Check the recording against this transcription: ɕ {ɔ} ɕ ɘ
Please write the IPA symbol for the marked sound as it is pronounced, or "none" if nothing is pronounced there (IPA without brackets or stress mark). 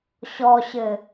ɔ